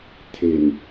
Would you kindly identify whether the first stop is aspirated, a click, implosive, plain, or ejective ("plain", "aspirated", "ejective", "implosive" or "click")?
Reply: aspirated